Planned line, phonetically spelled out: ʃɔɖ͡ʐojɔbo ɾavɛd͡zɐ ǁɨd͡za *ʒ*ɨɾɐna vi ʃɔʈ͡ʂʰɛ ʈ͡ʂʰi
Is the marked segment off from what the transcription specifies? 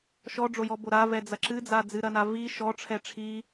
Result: yes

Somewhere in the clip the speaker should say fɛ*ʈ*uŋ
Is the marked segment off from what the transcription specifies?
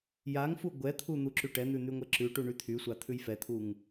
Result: yes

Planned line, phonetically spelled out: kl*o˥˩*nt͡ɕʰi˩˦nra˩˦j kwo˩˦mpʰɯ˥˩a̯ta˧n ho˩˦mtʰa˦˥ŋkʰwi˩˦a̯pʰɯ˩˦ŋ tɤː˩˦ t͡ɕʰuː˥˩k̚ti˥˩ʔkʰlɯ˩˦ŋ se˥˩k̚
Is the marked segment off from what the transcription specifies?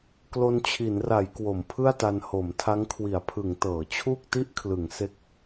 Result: yes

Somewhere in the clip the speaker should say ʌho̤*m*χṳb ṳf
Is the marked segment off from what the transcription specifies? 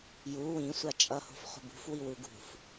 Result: yes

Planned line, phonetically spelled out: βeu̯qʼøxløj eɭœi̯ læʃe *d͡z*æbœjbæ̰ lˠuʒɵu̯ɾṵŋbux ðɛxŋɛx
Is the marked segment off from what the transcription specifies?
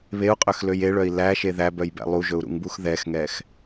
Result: yes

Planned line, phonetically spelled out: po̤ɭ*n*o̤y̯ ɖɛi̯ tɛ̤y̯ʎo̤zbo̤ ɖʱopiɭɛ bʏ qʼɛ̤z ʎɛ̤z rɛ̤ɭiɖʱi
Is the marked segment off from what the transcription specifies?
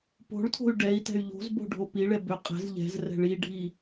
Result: yes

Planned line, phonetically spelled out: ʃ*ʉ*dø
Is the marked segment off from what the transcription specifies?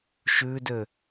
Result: no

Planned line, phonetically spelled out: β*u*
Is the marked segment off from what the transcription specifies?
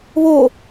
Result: yes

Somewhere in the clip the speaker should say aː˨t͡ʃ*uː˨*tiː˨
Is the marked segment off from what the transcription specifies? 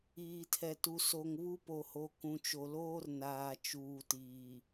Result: no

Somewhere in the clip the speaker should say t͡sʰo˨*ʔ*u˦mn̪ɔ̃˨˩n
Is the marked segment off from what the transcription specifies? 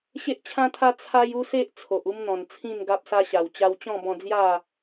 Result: no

